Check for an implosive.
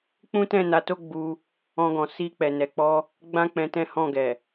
absent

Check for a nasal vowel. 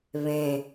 present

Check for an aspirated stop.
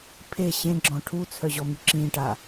present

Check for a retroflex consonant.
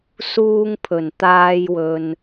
absent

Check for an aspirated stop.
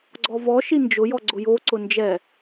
absent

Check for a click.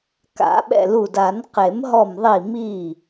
absent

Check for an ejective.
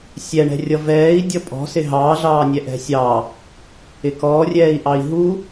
present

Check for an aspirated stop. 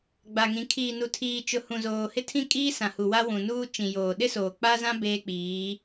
present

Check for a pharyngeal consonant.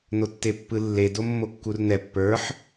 present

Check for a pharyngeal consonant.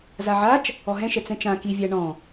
present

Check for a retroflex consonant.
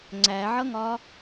absent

